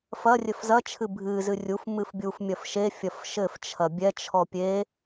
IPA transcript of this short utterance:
f ɐ rʲ ɘ f z ɐ t͡ʃʰ ɨ bʱ ɨ z ɨ rʲ u f m ɨ f bʲ u f mʲ ɐ f ʃ e fʲ ɐ f ʃ ɘ f t͡ʃʰ ɐ bʲ ɛ t͡ʃʰ ɔ pʲ e

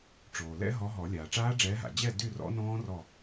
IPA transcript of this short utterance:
ʈ͡ʂ oː˩ l ɛ̰˦˥ ɦ ɔ˨˦ ɦ ɔ˨˩˦ lʲ aː˩ ʈ͡ʂ aː˦˥ ɖ͡ʐ ɛː˨˦ ɦ a̰˩ d͡ʑ ɛ˥˨ d y˥˨ r ɔ̰˦˥ n ɔ̃ː˦˥ r ɔ˥˨

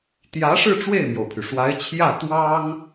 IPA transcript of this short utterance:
t̪ j ä˧˥ ʂ ɻ̩˥˧ ʈ͡ʂ w e˥˩ ɪ̯ m j o˩ ʊ̯ pʰ y˩ ʂ w a˧˥ ɪ̯ t͡ɕʰ j ä˥˩ t̪ w ɑ˥ ŋ

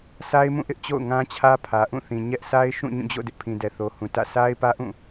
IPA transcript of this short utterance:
s a˦ ɪ̯ m ũ˦˨ ʔ ɪ˦ ʔ t͡ɕ o̰˦˨ ʊ̯ ŋ ã˦ t͡ɕʰ ä˦ pʰ ä˨ ʔ ũ˦˨ θ ĩ˨ ɲ ɛ˦ ʔ s a˦ ɪ̯ ʃ ũ˦˨ ɲ ũ˦˨ d͡ʑ o̰˦˨ d ɪ˦ ʔ pʰ ĩ˨ d ɛ˨ θ o˨ h ũ˨ t ä̰˦˨ s a˦ ɪ̯ p ä˦ ʔ ũ˦˨

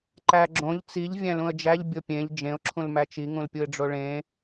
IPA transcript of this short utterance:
ǃ æ ɡ͡ǁ õ ʎ t͡s i ʎ vʲ æ̃ l ũ ə̯ d͡ʒ æ ʎ bʲ o pʲ ẽ ʎ d͡ʒ ẽ ʊ̯ ǁʰ ũ l m æ t͡ʃ i ŋ ũ l pʲ u ɪ̯ ɖ͡ʐ o ɭ ẽ

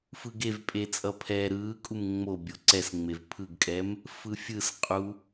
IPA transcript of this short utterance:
f ɯ ɡ e v pʼ e t͡sʼ ʌ pʰ ɛː ɾ ɯː kʼ u m ŋ͡m o bʲ o ǀ ɛ s ŋ͡m e v pʰ ɯ ɡ kʼ ɛ m | f ɯ fʲ ɯ s qʼ u

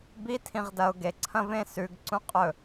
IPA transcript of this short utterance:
b i tʰ ĩ ʁ d ɐ ʊ̯ ɡ e ǀʰ ɐ̃ v ẽ s ʉ ɡ ǀ ũ qʼ ɵ

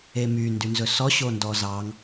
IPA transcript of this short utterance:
e m y n d y n z ɵ s ɔ ɕ o n d ɔ z ɑ ŋ

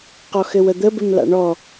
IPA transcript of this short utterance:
q ɔ x ɘ w ə d̪ ə b ɘ m l a̰ ɳ ɔ

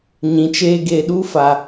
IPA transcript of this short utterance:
ɲ ĩ˨ t͡ʃ eː˦ ɡ eː˨ ɗ uː˦ f a˦

